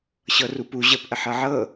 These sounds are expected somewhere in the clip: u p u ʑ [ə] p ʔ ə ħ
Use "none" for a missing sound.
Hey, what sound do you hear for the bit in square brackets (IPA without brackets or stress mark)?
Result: ə